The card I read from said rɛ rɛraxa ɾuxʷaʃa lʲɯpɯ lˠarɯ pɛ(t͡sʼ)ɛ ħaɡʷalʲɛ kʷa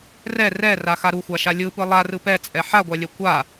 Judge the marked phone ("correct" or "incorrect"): correct